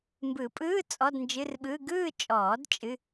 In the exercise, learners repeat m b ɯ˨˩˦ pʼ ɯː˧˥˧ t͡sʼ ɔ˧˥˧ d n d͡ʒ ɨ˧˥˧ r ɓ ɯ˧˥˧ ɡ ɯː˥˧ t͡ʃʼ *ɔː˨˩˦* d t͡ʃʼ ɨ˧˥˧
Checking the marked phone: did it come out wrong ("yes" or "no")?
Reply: no